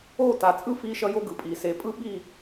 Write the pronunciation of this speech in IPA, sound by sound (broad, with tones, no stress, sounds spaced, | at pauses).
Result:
o˦˨ t a˨ t͡sʼ ɯ˦ f i˦ ʃ ʌ˦ j o˦ ɡ ɯ˨ pʼ i˨ s e˨˦ pʼ ɯ˦ ɓ i˦˨